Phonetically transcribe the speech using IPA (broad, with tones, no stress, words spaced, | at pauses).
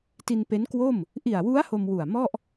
ti˧npe˦˥nkwo˥˩m | ʔi˨˩a̯wu˦˥a̯ ho˧mwu˨˩a̯mɔ˥˩ʔ